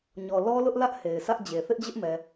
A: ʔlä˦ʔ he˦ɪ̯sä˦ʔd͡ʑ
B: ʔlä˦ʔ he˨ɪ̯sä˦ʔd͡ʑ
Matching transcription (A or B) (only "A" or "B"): B